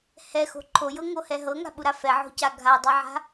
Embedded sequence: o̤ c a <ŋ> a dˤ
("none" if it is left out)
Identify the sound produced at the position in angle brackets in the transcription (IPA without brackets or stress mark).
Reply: ɡʱ